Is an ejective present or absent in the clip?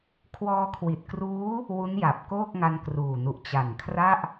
absent